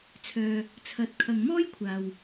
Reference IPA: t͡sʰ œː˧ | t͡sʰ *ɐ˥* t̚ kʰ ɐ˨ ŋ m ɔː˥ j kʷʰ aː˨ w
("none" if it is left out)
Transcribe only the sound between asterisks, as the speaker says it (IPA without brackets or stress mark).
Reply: ɐ˨